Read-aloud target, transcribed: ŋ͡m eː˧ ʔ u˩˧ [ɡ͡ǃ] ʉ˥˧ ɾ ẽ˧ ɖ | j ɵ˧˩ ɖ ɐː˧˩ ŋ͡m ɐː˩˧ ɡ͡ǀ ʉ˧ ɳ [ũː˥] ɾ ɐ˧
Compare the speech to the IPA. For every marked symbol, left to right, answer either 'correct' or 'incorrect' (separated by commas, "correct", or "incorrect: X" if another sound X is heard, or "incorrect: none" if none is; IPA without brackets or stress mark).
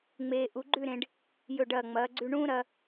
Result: correct, correct